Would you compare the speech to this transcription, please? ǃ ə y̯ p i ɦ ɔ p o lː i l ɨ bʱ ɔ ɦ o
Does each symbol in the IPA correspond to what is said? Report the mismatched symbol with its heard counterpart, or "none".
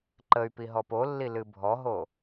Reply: none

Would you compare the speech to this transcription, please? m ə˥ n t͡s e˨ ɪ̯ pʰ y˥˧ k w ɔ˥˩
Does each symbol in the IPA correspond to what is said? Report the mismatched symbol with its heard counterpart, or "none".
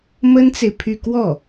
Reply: none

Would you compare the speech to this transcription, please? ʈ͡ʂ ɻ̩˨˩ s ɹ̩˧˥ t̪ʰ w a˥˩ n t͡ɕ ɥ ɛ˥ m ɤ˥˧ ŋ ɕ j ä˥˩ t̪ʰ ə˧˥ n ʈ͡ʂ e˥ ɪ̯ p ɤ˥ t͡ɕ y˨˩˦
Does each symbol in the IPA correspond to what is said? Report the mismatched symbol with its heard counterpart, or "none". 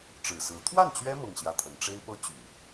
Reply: none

